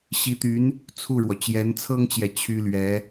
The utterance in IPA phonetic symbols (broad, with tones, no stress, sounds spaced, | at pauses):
ɕ i˧˥ t̪ y˧˥ n | t͡sʰ u˥˩ ɻ w ɔ˩ t͡ɕ j ɛ˧˥ n t͡sʰ ɤ˥ ŋ t͡ɕ j ɛ˨ t͡ɕʰ y˥ l ɥ ɛ˧˥